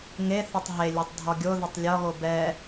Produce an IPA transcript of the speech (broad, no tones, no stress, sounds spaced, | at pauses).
ŋ e θ ɛ tˤ ɦ e lʲ o tˤ dʱ ɒ ɡʲ o ð e tˤ lʲ ɒ ɣ o b ɛ